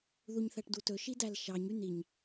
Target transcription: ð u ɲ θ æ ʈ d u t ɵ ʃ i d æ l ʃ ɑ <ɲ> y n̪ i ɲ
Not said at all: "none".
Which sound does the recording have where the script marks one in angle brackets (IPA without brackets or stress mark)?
ɲ